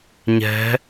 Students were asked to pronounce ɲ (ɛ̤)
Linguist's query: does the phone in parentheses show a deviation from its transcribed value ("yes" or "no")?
no